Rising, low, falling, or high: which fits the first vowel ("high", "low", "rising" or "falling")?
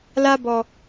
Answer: high